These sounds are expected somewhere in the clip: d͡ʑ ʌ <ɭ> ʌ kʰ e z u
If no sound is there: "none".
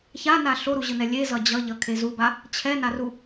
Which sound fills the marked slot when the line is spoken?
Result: ʎ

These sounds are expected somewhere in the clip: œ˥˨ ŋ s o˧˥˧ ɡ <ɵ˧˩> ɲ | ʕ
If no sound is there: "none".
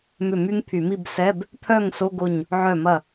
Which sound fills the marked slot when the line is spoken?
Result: o˧˩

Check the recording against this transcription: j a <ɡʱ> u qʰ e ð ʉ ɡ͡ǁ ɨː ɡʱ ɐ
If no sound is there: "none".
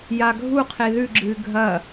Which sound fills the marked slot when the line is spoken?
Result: ɡʱ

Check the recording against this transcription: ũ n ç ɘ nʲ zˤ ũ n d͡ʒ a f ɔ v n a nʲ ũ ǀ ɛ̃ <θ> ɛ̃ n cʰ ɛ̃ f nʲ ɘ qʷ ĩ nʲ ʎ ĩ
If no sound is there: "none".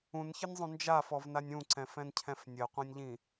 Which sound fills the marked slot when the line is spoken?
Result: f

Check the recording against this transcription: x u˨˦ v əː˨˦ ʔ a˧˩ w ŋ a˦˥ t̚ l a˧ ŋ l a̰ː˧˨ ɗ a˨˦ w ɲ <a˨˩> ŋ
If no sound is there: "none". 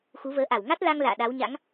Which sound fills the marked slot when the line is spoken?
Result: a̰˧˥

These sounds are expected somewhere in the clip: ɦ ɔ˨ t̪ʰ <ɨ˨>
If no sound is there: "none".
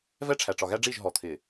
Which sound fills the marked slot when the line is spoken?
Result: ɪ˨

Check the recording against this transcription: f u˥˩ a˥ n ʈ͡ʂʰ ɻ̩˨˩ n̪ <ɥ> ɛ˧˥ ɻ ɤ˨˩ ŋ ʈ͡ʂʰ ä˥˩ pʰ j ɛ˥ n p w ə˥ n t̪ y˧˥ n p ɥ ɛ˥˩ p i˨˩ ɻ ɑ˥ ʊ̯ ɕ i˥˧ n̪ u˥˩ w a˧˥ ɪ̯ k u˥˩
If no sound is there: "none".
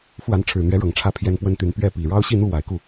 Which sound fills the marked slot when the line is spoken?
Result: ɥ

